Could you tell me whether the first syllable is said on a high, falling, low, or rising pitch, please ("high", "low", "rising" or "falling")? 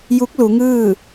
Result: rising